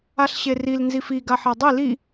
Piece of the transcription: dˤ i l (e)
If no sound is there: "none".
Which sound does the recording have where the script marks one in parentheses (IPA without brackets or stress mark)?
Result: i